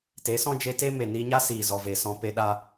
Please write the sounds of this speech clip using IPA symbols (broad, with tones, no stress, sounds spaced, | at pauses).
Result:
t e˨˦ s ɔ̃˦ d͡ʒ e˧ t e˦ m e˨ n iː˧ ɲ a˦ s iː˨ z ɔ˨ v e˨ s ɔ̃˧ p e˧ ɗ a˦